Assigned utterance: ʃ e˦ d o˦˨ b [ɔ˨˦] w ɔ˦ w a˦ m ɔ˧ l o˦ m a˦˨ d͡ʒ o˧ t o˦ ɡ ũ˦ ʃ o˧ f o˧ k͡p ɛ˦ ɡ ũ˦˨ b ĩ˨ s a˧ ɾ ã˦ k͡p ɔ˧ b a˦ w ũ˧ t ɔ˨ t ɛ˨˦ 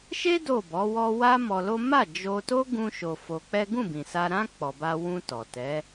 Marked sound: correct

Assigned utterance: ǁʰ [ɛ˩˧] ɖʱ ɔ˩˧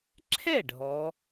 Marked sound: incorrect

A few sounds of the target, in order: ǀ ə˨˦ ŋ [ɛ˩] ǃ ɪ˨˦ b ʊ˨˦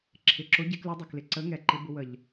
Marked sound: correct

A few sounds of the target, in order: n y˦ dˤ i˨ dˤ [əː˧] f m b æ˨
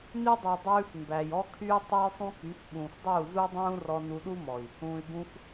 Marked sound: incorrect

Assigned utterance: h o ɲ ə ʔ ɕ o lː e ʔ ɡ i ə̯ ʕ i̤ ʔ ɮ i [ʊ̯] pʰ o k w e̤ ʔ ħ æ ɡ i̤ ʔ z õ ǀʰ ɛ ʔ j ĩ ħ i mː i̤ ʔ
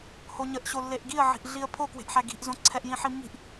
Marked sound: incorrect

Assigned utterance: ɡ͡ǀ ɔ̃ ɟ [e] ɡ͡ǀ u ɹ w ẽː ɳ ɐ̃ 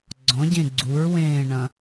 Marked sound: incorrect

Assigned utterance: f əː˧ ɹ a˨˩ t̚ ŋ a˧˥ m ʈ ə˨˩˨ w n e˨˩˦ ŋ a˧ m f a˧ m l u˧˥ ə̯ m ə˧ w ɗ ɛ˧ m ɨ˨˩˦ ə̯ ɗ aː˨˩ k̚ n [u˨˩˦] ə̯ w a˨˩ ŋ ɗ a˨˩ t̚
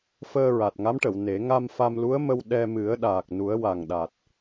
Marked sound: correct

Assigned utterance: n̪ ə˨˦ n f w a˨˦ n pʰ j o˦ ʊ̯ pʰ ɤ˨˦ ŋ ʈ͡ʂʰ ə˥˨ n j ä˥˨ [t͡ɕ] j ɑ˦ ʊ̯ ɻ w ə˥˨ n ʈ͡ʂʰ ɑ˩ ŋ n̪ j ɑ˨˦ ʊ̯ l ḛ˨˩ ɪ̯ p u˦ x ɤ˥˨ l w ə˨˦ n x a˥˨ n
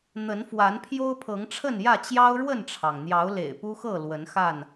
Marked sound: correct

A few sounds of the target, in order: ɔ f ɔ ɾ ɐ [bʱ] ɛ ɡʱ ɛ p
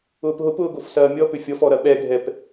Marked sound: incorrect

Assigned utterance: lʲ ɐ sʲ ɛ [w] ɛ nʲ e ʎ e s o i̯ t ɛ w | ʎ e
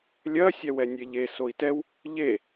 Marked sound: correct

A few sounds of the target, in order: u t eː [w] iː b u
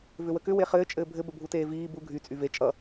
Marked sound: incorrect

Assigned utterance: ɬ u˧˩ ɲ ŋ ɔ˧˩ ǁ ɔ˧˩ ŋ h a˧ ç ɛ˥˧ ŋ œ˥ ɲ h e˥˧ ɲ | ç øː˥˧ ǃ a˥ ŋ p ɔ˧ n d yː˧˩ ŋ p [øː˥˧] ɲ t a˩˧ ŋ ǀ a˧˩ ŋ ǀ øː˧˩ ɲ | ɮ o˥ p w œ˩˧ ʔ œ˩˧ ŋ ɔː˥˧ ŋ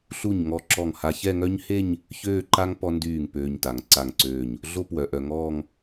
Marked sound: incorrect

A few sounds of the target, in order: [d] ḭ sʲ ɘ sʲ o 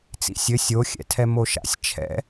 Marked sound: incorrect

